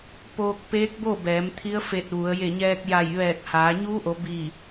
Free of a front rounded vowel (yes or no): yes